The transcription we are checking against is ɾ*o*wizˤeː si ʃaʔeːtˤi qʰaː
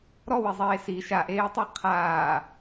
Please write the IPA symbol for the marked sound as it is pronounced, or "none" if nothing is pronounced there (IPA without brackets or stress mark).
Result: ɔ